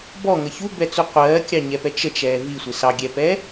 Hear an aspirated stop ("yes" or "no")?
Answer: no